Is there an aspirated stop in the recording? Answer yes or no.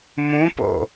no